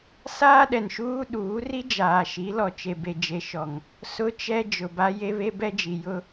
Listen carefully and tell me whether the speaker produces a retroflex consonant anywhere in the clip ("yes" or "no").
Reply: no